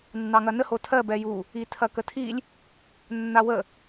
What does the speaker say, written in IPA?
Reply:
nː ɑ ŋ ɐ n ə h o tʰ ɜ b ɛ j u | i tʰ ɐ k ə tʰ i lʲ | nː a w ə

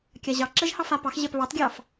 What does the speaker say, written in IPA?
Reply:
kʲ a ʑ ɑ ǁ ɛ ʒ h ɑ f a p ɑ x ʑ ɛ p β ɑ t ɡʲ ɑ f

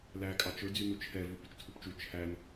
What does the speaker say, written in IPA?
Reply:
l æ kʼ ɑ t͡ʃ ɵ d͡z y n u t͡ʃʰ ɛ v ʉ p y t͡ʃ tʰ u p t͡ʃ u t͡ʃʰ æ n

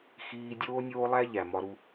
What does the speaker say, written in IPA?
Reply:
x iː˧ dʲ oː˦ nʲ oː˦ lˠ æ˦ ʎ æ˨ m ɒ˧ ɾ u˧

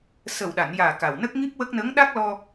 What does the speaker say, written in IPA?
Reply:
s ə˨˩ w ɗ a˨˩˨ n j aː˨˩ k a˨˩ w n ə˦˥ k̚ ŋ i˦˥ p̚ w ə˦˥ k̚ n ə˧˥ ŋ ɗ a˦˥ k̚ l ɔ˧

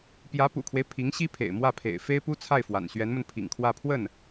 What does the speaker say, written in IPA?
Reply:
p j ä˧˥ p ṵ˨˩ kʰ w e˦ ɪ̯ pʰ i˧˥ ŋ ɕ i˥ pʰ ḛ˨˩ ɪ̯ m w ä˥˩ pʰ ḛ˨˩ ɪ̯ f e˥ ɪ̯ p u˥ t͡sʰ a˥˩ ɪ̯ f w a̰˨˩ n ɕ ɥ ɛ˧˥ n m ə˧ n pʰ ḭ˨˩ ŋ kʰ w ä˥˧ pʰ w ə˥˩ n

